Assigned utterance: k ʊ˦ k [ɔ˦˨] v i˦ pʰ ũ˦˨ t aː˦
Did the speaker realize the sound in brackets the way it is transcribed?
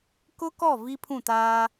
yes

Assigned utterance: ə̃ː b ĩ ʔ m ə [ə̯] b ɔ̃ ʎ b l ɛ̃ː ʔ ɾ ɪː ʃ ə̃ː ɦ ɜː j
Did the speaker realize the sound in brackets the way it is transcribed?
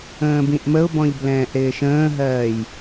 no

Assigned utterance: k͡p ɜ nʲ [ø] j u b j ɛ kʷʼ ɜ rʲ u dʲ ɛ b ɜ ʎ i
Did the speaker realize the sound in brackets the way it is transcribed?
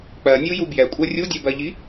no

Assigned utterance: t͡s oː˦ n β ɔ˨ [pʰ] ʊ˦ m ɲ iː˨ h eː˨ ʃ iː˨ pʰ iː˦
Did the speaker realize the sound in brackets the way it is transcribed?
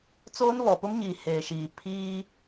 no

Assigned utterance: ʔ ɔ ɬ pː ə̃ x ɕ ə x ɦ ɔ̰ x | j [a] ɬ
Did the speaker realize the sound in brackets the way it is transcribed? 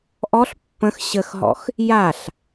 yes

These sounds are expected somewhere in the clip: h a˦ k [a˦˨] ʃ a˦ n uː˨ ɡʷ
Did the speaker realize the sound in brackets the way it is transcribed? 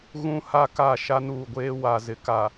yes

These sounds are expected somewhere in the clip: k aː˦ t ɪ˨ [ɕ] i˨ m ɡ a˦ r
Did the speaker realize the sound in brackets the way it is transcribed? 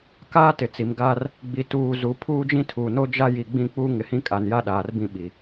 no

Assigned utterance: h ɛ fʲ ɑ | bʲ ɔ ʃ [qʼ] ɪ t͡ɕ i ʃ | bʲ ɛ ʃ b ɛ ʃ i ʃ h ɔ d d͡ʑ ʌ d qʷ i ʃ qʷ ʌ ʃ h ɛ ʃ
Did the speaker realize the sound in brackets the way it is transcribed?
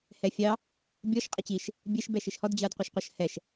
yes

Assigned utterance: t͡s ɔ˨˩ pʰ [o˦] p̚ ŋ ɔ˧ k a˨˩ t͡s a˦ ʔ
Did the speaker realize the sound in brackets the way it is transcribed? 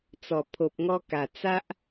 no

